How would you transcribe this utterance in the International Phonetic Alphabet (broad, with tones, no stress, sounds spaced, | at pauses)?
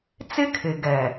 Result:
t͡s ɪ˦ kʰ ɪ˨ ɡ ɛ˨